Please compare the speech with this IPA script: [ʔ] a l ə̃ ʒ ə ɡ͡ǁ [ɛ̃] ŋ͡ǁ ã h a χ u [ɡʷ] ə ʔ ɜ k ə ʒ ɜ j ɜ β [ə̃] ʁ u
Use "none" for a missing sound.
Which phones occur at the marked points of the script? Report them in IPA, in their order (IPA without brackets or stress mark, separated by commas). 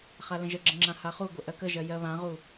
χ, ə̃, ɡʷ, ã